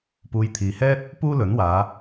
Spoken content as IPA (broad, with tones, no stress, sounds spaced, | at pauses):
p uː˧ j t̪ʰ iː˨ h ɛː˥ t̚ | p uː˥ l ɵ˨˥ n w aː˨˧